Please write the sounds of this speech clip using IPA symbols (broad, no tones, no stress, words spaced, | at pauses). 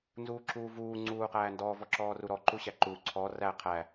nzuːǁuːvuː ŋ͡ǀuːqæːndɔ vɔǁɔːruɾɔ ǃuɕæǃuː ǀʰɔ ræ qʰæ